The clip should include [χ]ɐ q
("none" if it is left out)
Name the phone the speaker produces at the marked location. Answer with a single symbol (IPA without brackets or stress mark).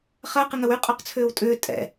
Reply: χ